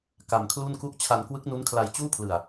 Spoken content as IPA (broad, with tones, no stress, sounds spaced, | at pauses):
k a˧ m kʰ l u˥˩ n k u˥˩ ʔ t͡ɕʰ a˧ n k w ɯ˦˥ k̚ n u˦˥ n kʰ l a˧ j t͡ɕ uː˥˩ pʰ l ɯ˧ a̯